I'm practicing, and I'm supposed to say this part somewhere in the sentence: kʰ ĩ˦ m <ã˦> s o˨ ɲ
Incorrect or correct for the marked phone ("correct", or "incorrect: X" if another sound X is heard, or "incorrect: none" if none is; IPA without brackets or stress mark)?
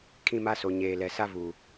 incorrect: a˦